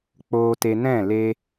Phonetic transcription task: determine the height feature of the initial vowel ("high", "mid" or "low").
mid